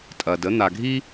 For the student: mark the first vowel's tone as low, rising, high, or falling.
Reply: low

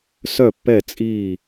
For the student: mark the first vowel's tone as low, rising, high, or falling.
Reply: falling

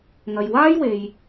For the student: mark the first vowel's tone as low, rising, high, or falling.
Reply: low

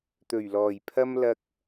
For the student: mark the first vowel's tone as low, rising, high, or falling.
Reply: low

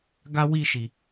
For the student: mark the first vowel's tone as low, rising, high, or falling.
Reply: high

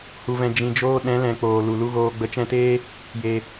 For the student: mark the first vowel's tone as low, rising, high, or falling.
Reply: low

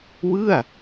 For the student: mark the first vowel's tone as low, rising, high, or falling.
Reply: falling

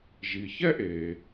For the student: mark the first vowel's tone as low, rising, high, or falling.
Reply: low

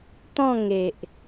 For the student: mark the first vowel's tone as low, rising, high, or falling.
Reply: falling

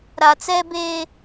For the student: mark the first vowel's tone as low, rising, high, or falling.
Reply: low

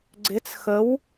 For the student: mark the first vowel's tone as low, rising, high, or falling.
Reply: rising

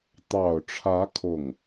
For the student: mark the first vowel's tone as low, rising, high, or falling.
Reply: low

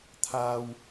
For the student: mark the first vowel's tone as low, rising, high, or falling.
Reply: high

